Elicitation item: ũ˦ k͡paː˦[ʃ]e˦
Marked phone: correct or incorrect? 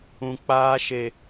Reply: correct